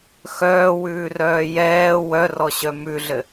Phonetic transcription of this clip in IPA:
x œː w ʉː r œː j ɛː w œ r ɔ ɕ œ m ʉ ɮ ɘ

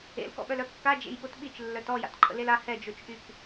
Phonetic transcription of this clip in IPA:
ḛ l k ɔ̰ ɓ œ l œ kː a d͡ʒ ḛ j ɓ o t ɓ i t͡ʃ lː œ t ɔ j a̰ t ǃʰ ə̰ l e l a h ɛ d͡ʒ o t͡ʃ ʔ y k

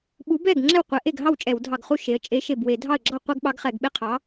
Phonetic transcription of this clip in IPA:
ɓ u˨˥ b ɛ˥˩ ɡ ŋ͡ǁ ɛ˥˩ w qʷ ɛ˨˥ ʔ e˥˩ ɡ ɦ ɑ˥˩ w t͡ʃʼ ɛ˧˩˧ w dʱ ɑ˧˩ ɡ χ u˥˩ ʃ e˨˥ ə̯ t͡ʃʼ e˨˥ ʃ e˧˩ b w e˧˩˧ dʱ ɑ˥˩ ə̯ ɡ͡ǁ ɑ˥˩ qʷ ɛ˦ ɡ ɓ ɑ˨˥ ɡ χ ɛ˧˩˧ ɡ ɓ e˦ qʰ ɑ˨˥

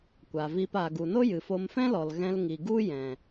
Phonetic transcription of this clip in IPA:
kʷ a˨ v iː˧ p aː˨ ɡ u˨ n o˦ j ɨ˨ f o˧ m f ɛ̃˦ l ɔ˨ l ɣ ɛ̃˧ l ŋ i˨ ɡ u˦ j ɛ̃˨

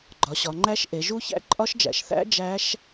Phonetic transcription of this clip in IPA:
ɡ͡ǃ ɒ˩˧ ɕ ɒ˩˧ ŋ͡ǃ æ˦˥ ʃ ʔ e˩˧ ʒ u˦˥ ç æ̰˦˥ ǃʼ ɒ˦˥ ʃ d͡ʒ æ̰˩˧ ʃ θ æ̰˦˥ d͡ʒ æ˦˥ ʃ

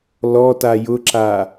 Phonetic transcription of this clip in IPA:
l ɔ t a j ʊ ǁ a

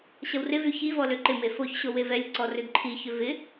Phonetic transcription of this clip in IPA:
ɕ ɐ w r ɪ v y ç i v ɔ l ø ǃ ɪ m e f o ç ɕ o w e v ɛ lʲ ǀ ɔ r ʏ d ǃʰ i ç ʏ v ɪ

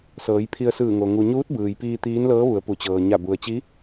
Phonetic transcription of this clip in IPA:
s ɤː˩˧ j pʰ i˧ ə̯ s ɯː˧˩ ŋ o˩ ŋ u˩ ɲ uː˧˥ t̚ b ɯː˩ j p iː˧ t̪ iː˧˥ n l ɤː˧˥ ʋ u˩˧ ə̯ p u˩ t͡ɕ ɤː˩ ɲ a˧˩ b u˩ ə̯ t͡ɕ i˧˥

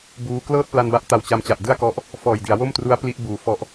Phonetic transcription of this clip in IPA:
b uː˦˥ k l ɤː˥˩ t̚ p l a˧ n b a˦˥ ʔ t a˨˩ w t͡ɕ a˧ m t͡ɕ a˨˩ ʔ d ɯ˥˩ a̯ k ɔ˦˥ ʔ | f ɔː˨˩ j d i˩˦ a̯ w o˥˩ m t r u˦˥ a̯ p l i˦˥ ʔ b uː˩˦ f ɔ˦˥ ʔ

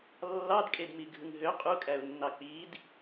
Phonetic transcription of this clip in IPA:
lː ɑ d kʼ e d m i ɡʱ ɯ ŋ ɦ ø qʼ u kʼ æ ʊ̯ nː ɑ k͡p i d

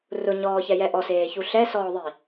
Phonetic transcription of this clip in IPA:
r ʊ ɲ ɔː ç ɛ j ɛ ʔ ɔ s eː ç u ɬ ɛ s ɔː ðˤ i

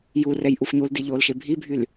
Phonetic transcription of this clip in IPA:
j u r ɛ j ʔ u f ɲ u l d i ʎ oː l ʃ e bʱ i bʱ y l

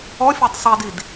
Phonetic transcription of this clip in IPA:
ɔ fʲ a tˤ sˤ i d i d

